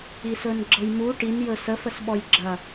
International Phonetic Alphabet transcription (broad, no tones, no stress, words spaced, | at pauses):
isɵnɡ͡ǁɤjmu ʈin jɵsə fəsɓɔjɡ͡ǁɐ